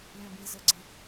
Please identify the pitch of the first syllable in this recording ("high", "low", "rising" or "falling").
low